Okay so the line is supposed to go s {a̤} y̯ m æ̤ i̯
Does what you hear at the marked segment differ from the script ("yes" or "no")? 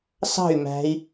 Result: yes